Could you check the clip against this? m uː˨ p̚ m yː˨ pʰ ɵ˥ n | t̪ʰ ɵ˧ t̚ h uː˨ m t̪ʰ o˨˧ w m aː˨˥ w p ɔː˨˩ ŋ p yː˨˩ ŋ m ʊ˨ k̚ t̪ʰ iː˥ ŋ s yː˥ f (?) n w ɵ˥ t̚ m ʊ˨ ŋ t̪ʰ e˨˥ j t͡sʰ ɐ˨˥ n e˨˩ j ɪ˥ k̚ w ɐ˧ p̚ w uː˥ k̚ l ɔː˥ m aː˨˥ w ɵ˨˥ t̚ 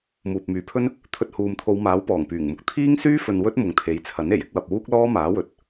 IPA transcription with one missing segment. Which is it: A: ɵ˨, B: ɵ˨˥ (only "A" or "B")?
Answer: A